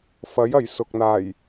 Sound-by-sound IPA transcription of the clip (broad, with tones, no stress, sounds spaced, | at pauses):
f ɐ˨˥ j ɐ˨˩ j s ʊ˨ k̚ n̪ aː˨˩ j